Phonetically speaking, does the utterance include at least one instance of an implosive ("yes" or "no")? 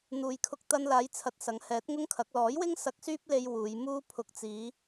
no